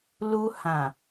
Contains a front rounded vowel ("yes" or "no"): no